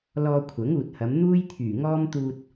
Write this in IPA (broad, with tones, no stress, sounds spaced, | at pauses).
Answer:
l ɔː˧ kʷʰ ɐ˨˥ ŋ uː˨ t̚ h ɐ˨˧ m n̪ uː˥ j t̪ʰ yː˨˩ ŋ ɔː˥ m t̪ uː˧ t̚